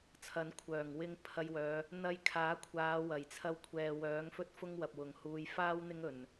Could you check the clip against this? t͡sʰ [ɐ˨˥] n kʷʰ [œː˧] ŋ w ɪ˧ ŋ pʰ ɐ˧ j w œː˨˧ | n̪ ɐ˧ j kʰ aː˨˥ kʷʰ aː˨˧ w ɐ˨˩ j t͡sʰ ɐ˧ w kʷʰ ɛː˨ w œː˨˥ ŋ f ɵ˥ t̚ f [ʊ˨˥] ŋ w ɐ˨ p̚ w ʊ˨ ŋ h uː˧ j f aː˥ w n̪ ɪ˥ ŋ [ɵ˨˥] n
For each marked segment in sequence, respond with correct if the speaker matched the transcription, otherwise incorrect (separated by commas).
incorrect, incorrect, incorrect, incorrect